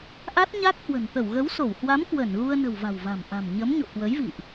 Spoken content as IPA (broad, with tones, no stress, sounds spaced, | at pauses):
ʔ a˦˥ t̚ ɲ a˦˥ k̚ h w ə̤˨˩ n t̪ ə˧˩ w ɣ ə˨˦ w s o˧˩ w h w a˨˦ m k w ə˧˩ n ɣ u˧ ə̯ n ə̤˨˩ w v a̤˨˩ w v a̤˨˩ m ʔ a̤˨˩ m ɲ ə˨˦ m ɲ o̰˧˨ k w ə˨˦ j v ḭ˧˨ ʔ